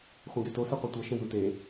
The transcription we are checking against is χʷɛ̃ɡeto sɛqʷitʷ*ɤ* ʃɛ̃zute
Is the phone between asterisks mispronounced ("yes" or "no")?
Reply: no